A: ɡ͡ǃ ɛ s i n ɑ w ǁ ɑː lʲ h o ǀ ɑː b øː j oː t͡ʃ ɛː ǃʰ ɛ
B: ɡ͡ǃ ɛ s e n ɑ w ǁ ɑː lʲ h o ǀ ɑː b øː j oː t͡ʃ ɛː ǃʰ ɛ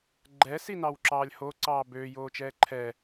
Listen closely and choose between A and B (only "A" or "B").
A